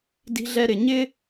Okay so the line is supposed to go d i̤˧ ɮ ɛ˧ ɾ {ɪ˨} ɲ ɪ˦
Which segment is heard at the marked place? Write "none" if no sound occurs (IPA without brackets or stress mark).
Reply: ɪ˨